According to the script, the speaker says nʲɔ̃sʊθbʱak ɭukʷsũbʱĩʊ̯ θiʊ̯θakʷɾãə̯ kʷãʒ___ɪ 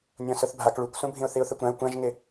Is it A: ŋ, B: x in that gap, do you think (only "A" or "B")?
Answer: A